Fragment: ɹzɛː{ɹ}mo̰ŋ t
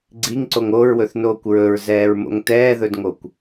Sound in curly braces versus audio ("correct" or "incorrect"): correct